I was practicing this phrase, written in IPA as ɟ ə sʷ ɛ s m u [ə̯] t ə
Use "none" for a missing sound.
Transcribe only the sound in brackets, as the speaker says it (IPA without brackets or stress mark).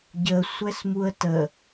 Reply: ə̯